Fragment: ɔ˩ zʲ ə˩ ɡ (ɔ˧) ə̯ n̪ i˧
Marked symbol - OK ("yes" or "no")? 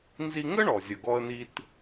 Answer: yes